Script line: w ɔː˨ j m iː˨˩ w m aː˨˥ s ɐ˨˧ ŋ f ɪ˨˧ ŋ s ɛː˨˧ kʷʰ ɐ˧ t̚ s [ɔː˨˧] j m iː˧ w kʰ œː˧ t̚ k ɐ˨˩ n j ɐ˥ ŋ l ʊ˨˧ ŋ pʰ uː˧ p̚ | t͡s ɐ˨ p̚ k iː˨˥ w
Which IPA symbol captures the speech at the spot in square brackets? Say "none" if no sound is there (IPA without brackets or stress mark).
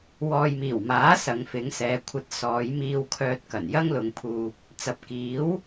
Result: ɔː˨˧